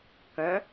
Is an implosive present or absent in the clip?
absent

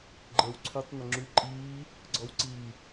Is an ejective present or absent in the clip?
present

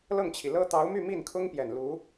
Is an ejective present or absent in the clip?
absent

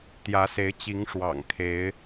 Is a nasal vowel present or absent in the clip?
absent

